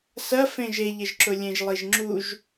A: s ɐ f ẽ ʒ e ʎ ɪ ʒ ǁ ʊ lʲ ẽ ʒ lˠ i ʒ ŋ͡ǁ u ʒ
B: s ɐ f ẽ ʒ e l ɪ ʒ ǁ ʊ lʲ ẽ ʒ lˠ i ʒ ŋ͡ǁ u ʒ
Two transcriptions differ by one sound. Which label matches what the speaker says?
A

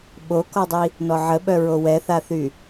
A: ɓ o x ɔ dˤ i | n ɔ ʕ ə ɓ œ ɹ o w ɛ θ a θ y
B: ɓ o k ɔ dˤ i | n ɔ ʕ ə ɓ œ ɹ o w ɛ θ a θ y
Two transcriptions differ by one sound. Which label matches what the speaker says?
B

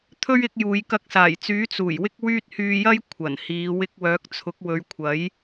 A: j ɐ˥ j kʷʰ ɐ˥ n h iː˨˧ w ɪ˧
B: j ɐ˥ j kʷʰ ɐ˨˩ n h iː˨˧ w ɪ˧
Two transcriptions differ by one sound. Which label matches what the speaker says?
B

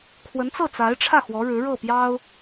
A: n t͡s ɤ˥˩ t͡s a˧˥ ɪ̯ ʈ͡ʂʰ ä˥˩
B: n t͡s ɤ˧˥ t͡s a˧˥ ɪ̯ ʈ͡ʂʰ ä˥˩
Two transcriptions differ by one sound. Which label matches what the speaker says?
A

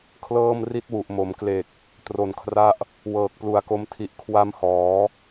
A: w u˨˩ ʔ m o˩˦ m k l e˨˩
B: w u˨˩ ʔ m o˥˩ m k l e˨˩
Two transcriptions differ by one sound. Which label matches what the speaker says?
A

